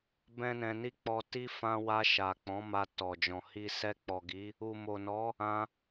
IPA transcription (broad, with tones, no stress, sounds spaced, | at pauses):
b ɛ̃˦ n ɛ̃˧ n i˦ k͡p ɔ˧ t i˦ f ã˧ w a˧ ʃ a˨ k͡p ɔ̃˨˦ m a˧ t ɔ˨ d͡ʒ ɔ̃˨ h i˧ s ɛ˧ k͡p ɔ˨ ɡ i˨˦ | u˨ m o˨ n ɔ˨˦ | ã˧